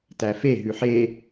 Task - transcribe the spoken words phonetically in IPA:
t æ f e ɦ ʉ ħ e

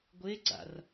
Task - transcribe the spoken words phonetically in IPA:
ɡʷ e ɡ͡ǀ a̰ r

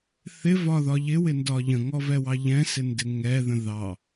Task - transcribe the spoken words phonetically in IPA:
θ ɪ v ɒ ð ɒ ʎ ɪ w ɪ n d ɒ ʎ ə̃ ŋ ɔ v ɛ w ɑ ʎ ɛ̃ s ɪ n d ɪ ŋ ɛ ð ə̃ ð ɑ

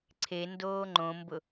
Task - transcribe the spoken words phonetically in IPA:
ǀʰ e n d oː ŋ͡ǃ õ m b ʊ

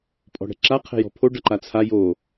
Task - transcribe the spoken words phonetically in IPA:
pʼ ɔ̤ ɽ ɛ̤ ǁ a qʰ ɛ̤ j ɔ̤ pʰ o ɖ ʌ ǃ a t͡sʰ a j o

